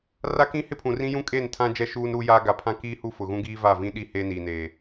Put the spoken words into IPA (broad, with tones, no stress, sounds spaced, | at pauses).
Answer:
r a˦ k ĩ˦ h ɪ˦ pʰ ũ˨ r ĩ˦ j ũ˦ kʼ eː˦˨ n tʰ ã˦ d͡ʒ ɛ˦˨ ʃ uː˦ n ɾ uː˦ j aː˦ ɡ a˨ pʰ ã˦ k iː˦ h u˦ f ʊ˨ ɣ ũ˦ ɡ iː˦ v a˦˨ v ĩ˦ ɗ i˦˨ h eː˦ n iː˨ n eː˨